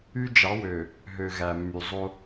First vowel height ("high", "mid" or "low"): high